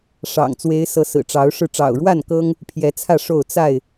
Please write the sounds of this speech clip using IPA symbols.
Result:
ʂ ɑ̰˨˩ ŋ t͡s w e˨˦ ɪ̯ s ɤ˨˦ s ɹ̩˨˩ ʈ͡ʂ ɑ˨˦ ʊ̯ ʂ ɻ̩˧ ʈ͡ʂ ɑ̰˨˩ ʊ̯ ɻ w a˥˨ n k ɤ˦ ŋ | pʰ j ɛ˨˦ t͡sʰ ä˥˨ ʂ o˥˨ ʊ̯ t͡s a˥˨ ɪ̯

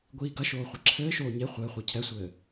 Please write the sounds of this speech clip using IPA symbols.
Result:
ɡʷ iː ɡ ɐ ʃ oː χʷ ɨ ǁʰ ɘː ʃ oː ɲ e χʷ ɘː χʷ ɛ cʰ ɛ sʷ ɘː

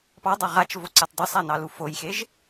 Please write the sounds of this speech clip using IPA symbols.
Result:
p ɑ dˤ ɑ ʁ a t͡ʃ v o ǀ a t dˤ o sˤ a n ɑ l u f o j x e ʒ

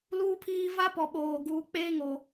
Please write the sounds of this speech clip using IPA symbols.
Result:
l uː˦ pʰ iː˦ v a˦ p ɔ˨ ɓ oː˨ ɡ uː˨ k͡p eː˦ ŋ o˨

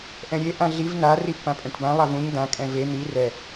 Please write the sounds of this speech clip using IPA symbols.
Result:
ʔ ɛ̃ ɾʲ e ʔ ã ɮ i v n a r i pː ã pʼ ɛ̃ ʈ b ã lˠ a v ũ ɲ d ã kʼ ɛ̃ v e n̪ i r ɛ

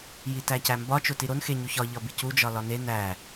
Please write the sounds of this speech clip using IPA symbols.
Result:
j i t æ c æ m b ɒ t͡ʃ o t i ɾ o n x e ɲ u ç ɒ ʎ ɒ b i c u d͡ʒ ɒ l ɒ n e n æ

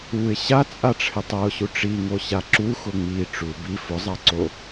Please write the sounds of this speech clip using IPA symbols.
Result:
u ɪ̯ ɕ a t͡sʼ a ʈ͡ʂʰ ɪ tˤ a ʊ̯ ɕ u ʈ͡ʂ i ŋ o ɕ a ǁ u x ʊ ŋ͡m i ʈ͡ʂ u b i f ʊ zˤ a ǀ o

